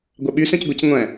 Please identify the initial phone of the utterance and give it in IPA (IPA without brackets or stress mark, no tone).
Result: ɡʷ